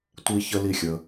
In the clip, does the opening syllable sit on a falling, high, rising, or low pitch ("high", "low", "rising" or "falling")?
high